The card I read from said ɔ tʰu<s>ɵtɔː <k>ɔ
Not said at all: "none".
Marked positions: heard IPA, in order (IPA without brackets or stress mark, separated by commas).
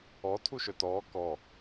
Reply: ʃ, k